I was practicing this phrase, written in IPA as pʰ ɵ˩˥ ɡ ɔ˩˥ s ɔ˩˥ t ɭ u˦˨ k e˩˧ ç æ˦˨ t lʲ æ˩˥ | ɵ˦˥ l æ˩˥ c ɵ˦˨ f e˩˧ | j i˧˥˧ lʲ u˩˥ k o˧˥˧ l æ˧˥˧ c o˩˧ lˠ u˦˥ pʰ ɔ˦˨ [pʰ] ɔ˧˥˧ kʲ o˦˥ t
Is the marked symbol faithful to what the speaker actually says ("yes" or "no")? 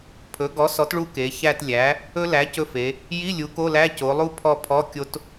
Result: yes